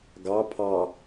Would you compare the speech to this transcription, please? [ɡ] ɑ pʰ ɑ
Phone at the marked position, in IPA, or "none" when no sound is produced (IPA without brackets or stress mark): ɡ